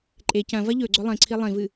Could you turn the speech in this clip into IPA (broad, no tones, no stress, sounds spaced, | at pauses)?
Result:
ǃʼ e c ɐ̃ v ɐ ʎ ɵ ɡ͡ǀ ɵ lˠ ĩ ǀʰ i lˠ ĩ v ɨ